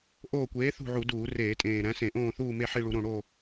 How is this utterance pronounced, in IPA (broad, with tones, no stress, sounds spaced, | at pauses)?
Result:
ʔ oː˦˨ kʷ eː˨˥ θ ṳ˦˨ ʕ u˧˩˧ d uː˧˩˧ r eː˧˩˧ tʼ ẽː˨˩ ɾ æ̃˨˥ s ẽ˧˩˧ ʔ õː˦˨ θ uː˦˨ m e˦˨ ħ i˦˨ ɭ u˧˩˧ ɾ õ˨˩ ɽ o˦˨